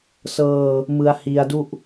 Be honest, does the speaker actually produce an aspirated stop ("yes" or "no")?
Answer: no